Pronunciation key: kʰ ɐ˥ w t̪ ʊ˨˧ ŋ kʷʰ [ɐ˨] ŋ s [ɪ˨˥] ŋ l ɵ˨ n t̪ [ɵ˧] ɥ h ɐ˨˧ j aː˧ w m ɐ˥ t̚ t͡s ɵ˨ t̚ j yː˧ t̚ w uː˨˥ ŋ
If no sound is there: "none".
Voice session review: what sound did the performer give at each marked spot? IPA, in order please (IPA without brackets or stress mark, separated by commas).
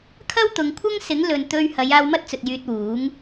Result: ɐ˥, ɪ˨˥, ɵ˧